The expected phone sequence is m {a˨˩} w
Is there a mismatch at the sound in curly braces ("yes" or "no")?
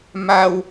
no